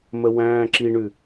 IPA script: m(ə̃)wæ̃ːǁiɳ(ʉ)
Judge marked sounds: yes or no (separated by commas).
no, yes